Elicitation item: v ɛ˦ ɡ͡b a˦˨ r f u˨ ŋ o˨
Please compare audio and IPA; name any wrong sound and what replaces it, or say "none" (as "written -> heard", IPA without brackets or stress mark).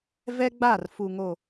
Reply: none